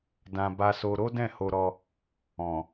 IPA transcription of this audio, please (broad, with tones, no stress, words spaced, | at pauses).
dã˧ ba˦so˦ ɾo˦dɛ̃˦˨ho˧ɾɔ˧ | ɔ̃˨